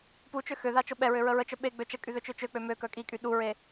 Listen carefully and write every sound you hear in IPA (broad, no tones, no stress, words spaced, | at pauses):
put͡ʃø xøða t͡ʃoɓɛɹø ɹəɹət͡ʃœ ɓe ɡ͡bøt͡ʃəkʼy ðøt͡ʃøt͡ʃøk͡pø møkœ kʼikʼy ɗuɹe